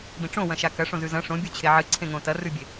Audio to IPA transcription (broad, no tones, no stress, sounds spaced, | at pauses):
b ĩ ʈ͡ʂ õ w ɐ̃ ʃ a k ɐ ʂ õ z ʉ z ɐ̃ ʂ õ bʲ u t͡ɕʰ e ʕ ɨ ǀʰ ẽ ŋ õ t ɐ r ʉ bʲ e